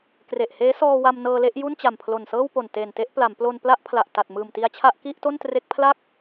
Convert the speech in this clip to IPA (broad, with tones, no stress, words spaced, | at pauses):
kre˨˩ʔheː˦˥sɔː˧ wa˧m nɤː˧le˥˩ʔ ju˥˩nt͡ɕa˨˩mpʰlo˨˩nsɤː˥˩w po˨˩nteː˨˩nte˥˩ʔ pla˩˦mplo˧npla˥˩ʔpʰla˨˩ʔ ta˨˩t̚ mɯː˨˩mti˧a̯t͡ɕʰa˥˩ʔ ki˥˩ʔto˥˩ntre˦˥k̚pʰla˥˩k̚